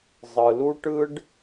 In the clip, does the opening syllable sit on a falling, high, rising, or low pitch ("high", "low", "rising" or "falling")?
low